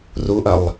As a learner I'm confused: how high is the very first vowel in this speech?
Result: high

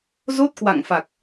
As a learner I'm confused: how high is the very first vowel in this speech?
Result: mid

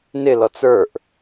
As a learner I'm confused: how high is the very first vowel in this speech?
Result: high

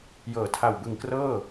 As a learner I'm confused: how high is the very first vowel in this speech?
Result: mid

